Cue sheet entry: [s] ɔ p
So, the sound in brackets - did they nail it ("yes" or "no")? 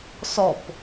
yes